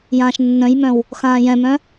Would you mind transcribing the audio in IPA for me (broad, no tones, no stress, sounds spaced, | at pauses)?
j ãː ʃ nː œ̃ j m œ̃ w | x ãː j ɛ̃ m œ̃